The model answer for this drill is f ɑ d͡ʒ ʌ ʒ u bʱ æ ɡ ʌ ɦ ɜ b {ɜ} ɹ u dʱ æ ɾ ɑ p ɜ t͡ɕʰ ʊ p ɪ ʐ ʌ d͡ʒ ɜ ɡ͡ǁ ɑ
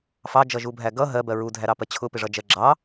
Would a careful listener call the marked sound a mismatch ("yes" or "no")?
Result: no